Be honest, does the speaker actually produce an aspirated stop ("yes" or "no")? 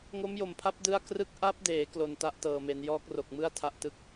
yes